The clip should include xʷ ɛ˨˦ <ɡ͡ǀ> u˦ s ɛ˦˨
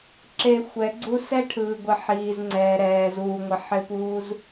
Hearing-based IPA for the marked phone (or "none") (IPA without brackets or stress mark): ɡ͡ǀ